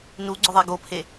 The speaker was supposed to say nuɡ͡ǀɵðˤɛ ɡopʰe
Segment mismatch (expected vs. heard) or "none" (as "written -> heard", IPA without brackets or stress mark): none